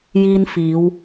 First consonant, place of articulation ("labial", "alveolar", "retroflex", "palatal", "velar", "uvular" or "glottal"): palatal